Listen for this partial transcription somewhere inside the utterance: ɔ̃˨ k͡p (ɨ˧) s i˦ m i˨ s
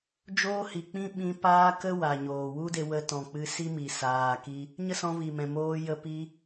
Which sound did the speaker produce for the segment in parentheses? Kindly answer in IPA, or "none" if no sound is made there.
ɨ˧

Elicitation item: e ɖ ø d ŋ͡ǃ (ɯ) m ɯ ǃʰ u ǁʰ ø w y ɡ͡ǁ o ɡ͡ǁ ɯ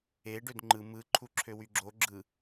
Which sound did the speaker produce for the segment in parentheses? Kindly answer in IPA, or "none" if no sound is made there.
ɯ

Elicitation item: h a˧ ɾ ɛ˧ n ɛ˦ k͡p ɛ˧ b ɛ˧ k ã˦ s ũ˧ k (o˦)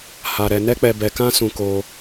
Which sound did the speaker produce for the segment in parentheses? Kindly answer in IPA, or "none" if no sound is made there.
o˧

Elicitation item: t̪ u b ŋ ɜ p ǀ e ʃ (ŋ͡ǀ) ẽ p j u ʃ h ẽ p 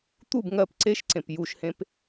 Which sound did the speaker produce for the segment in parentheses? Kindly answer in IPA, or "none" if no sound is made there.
ǀ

